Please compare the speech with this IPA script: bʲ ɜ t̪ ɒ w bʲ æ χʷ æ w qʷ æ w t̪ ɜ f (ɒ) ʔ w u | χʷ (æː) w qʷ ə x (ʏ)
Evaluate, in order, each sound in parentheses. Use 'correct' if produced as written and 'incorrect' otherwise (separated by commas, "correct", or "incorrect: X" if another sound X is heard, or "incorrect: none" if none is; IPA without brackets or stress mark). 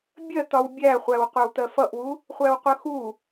incorrect: ʌ, incorrect: æ, incorrect: u